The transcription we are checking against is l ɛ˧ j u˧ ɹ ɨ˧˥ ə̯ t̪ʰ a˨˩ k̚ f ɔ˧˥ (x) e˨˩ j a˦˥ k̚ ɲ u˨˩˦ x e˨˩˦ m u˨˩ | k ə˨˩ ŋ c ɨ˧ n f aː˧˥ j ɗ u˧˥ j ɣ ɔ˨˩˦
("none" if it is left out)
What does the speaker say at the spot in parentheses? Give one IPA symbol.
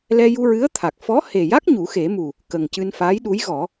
h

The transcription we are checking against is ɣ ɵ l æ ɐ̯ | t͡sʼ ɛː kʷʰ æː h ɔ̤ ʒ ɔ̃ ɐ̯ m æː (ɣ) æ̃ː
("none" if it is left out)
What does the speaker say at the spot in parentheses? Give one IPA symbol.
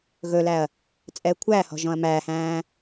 h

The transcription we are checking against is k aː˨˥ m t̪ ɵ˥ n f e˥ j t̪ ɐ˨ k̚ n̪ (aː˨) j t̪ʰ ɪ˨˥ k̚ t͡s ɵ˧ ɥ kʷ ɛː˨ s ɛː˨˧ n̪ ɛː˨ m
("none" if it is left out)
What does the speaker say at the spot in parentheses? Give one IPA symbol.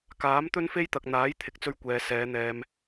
aː˨˥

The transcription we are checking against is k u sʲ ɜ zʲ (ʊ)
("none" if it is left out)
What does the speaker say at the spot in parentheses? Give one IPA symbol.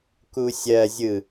ɯ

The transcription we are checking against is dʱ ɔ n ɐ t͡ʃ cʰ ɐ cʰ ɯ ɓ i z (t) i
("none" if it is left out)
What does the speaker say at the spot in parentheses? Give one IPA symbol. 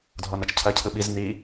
n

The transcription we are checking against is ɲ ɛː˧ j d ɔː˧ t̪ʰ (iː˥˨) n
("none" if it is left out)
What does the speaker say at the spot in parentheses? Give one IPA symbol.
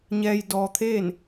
eː˥˨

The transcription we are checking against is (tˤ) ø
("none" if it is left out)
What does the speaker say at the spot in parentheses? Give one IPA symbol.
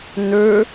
n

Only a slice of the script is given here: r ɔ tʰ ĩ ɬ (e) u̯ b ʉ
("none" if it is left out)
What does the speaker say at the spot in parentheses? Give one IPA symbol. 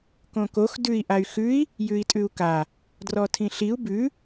i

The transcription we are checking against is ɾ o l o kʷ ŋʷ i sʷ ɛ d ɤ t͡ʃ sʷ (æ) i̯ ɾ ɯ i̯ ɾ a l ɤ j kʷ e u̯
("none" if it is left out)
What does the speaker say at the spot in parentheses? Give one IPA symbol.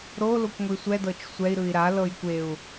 ɛ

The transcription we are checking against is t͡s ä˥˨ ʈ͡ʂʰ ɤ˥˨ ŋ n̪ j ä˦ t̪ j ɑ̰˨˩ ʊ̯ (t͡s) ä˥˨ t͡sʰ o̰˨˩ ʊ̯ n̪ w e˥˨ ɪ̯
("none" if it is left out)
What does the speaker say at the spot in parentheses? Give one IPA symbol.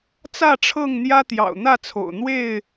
n̪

